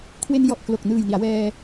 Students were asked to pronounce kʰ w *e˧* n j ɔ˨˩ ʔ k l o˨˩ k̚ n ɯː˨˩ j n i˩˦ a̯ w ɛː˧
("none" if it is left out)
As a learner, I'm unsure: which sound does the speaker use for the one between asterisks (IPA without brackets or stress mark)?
e˧